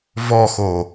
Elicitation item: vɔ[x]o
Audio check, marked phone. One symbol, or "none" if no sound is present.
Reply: x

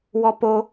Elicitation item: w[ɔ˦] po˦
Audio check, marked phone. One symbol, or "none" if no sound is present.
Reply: ɔ˦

